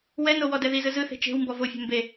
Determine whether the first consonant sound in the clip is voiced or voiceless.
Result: voiced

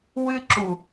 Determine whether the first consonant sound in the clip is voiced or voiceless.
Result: voiced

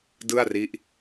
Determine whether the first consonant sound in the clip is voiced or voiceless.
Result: voiced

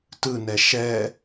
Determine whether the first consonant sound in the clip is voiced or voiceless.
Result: voiceless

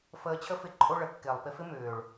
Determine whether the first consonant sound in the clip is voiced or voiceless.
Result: voiceless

